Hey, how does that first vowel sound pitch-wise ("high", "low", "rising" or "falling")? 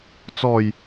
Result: low